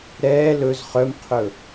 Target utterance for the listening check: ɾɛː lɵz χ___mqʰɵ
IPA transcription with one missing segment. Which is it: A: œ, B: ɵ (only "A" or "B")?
A